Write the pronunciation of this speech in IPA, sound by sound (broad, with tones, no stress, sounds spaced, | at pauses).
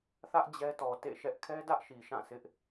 θ ä˦ ʔ d͡ʑ ɛ˦ t ɔ˨ t ḛ˦˨ ʃ ɛ˦ ʔ kʰ ɛ˦ d ä˦ ʔ ʃ i˨ ʃ ã˦˨ sʰ ɪ˦ ʔ